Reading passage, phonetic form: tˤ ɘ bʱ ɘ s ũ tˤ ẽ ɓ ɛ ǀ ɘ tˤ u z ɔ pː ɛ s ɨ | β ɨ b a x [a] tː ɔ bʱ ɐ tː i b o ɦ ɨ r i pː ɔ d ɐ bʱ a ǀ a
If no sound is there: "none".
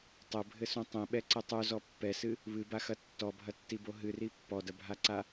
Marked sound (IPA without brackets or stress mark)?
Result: ɐ